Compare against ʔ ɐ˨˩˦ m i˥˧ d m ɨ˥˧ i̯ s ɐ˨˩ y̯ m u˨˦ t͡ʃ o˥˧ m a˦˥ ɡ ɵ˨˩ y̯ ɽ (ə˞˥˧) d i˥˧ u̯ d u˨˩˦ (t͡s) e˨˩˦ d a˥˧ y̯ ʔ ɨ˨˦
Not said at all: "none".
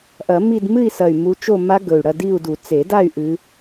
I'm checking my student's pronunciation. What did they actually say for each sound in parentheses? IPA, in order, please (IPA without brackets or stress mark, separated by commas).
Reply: ɐ˥˧, t͡s